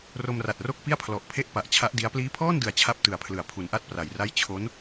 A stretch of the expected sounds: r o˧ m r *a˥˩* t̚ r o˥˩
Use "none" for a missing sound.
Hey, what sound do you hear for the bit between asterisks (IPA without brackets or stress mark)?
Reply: a˨˩